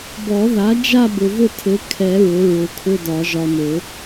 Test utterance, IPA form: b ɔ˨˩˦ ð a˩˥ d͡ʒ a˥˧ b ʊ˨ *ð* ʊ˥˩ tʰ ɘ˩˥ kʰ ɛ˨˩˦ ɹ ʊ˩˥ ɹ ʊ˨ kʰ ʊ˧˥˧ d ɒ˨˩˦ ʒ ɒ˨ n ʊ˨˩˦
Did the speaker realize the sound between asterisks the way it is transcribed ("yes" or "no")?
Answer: no